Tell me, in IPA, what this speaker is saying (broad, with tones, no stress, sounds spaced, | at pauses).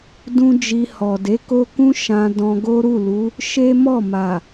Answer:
d ũ˦ d͡ʒ i˧ h ɔ˨ d e˨˦ k o˦ k ũ˦ ʃ ã˧ d ɔ̃˧ ɡ o˦ ɾ u˦˨ l u˨˦ | ʃ e˦ m ɔ˦˨ m a˨